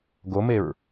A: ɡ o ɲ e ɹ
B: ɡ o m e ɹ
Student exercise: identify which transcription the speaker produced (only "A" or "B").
B